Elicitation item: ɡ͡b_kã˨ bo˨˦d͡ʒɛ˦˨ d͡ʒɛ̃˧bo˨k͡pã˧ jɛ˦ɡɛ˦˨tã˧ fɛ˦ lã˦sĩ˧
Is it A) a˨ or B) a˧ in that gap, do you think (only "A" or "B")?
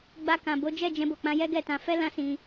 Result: B